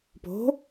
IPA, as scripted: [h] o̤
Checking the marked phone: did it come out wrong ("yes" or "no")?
yes